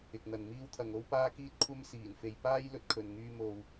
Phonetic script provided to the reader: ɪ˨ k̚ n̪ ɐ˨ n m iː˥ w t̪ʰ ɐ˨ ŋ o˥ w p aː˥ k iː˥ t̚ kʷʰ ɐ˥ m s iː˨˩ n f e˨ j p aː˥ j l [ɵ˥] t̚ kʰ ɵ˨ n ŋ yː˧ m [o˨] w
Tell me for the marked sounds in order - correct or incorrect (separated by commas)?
incorrect, correct